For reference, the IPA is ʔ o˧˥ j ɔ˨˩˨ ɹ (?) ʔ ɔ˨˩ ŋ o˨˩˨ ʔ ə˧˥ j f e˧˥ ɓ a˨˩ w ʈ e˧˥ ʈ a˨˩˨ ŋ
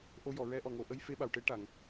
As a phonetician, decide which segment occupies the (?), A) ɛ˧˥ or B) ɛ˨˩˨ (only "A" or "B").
A